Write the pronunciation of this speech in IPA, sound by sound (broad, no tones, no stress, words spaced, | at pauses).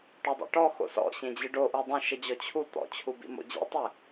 ʈodˤo̰ʈɔ xo̰sɔ̰ ɕẽd͡ʑɨɖoʔu dˤũʃɘd͡ʑɔ t͡ɕʰu t̪ɔ̰t͡ɕʰubḭ mo̰d͡ʑḭtˤɛ